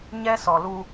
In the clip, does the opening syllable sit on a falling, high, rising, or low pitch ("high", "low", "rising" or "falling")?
high